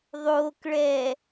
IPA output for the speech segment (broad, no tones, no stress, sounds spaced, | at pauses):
ðˤ oː k ɭ ɛː